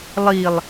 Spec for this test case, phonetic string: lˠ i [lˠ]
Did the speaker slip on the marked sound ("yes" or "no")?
no